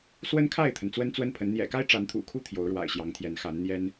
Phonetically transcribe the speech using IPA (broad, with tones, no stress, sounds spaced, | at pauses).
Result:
s w ə˦ n kʰ a˥˨ ɪ̯ t̪ʰ ə˩ n t͡s w ə˦ n t͡s w ə˦ n pʰ ə˨˦ n n̪ j ɛ̰˨˩ k a˦ ɪ̯ ʈ͡ʂ a˨˦ n t̪ʰ ṵ˨˩ kʰ u˦ t̪ʰ j o˨˦ ʊ̯ ɻ w a̰˨˩ ɪ̯ ɕ j ɑ˨˦ ŋ t̪ʰ j ɛ˨˦ n x a˨˦ n n̪ j ɛ˦ n